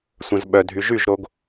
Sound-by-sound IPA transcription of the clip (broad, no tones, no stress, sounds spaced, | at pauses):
sʷ ə̃ z ɓ œ dʱ y ʒ y ʒ ɾ o ɡ